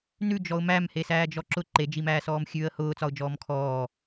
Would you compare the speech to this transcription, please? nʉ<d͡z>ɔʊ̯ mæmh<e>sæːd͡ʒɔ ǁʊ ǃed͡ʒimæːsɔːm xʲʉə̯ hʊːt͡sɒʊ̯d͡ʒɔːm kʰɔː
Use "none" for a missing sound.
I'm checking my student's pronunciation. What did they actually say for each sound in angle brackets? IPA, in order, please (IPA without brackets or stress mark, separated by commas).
d͡ʒ, e